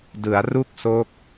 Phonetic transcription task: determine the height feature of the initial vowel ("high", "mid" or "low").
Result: high